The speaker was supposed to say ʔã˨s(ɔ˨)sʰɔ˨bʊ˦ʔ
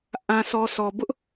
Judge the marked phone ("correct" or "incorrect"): correct